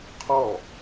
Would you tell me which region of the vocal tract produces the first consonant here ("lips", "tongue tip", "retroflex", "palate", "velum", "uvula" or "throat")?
uvula